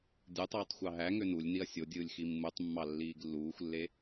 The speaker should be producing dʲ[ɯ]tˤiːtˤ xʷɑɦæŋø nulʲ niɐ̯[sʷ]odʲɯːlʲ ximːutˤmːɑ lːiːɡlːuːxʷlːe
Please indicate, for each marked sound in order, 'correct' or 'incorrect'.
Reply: correct, incorrect

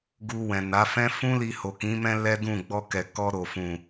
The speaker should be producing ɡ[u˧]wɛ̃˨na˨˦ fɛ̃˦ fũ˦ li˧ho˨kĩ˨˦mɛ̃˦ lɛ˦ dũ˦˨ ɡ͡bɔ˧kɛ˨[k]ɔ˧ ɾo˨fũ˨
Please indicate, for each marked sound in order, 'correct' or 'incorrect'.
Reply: correct, correct

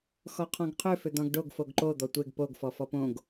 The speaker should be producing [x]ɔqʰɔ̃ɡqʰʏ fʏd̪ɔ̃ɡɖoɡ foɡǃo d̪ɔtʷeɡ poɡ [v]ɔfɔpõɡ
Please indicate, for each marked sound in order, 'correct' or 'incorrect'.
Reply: correct, incorrect

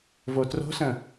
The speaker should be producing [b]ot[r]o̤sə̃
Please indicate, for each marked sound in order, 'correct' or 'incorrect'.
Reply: incorrect, correct

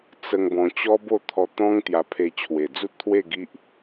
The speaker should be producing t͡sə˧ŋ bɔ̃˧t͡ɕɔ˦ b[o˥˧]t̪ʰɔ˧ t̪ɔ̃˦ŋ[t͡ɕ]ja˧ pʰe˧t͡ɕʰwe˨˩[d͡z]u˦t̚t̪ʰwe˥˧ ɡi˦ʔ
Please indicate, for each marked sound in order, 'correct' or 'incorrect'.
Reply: correct, incorrect, correct

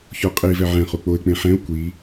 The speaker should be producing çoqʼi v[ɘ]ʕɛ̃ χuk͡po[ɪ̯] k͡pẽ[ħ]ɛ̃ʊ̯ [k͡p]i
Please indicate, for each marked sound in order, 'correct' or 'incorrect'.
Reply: incorrect, correct, correct, incorrect

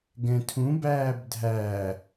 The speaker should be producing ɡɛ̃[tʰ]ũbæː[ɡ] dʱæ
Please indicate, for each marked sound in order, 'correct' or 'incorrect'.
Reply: correct, incorrect

